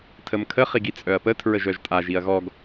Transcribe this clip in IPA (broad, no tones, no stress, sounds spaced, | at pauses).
tʰ ə m kʰ ə χ i ɡ i t͡sʼ œ ɐ̯ p ə tʰ ɹ ə ʒ œ ʒ tʼ a ʒ i ɐ̯ ɣ ɔ ɡ